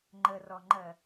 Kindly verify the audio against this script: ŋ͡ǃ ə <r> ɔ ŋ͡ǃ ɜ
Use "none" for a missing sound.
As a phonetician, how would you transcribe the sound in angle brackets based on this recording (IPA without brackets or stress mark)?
r